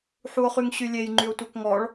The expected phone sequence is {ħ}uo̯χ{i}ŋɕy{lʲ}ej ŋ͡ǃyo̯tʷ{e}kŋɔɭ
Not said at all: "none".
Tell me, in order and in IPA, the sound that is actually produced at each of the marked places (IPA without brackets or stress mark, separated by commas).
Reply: ħ, y, lʲ, e